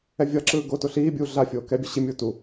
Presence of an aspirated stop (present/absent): absent